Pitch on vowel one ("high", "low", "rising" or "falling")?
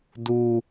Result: low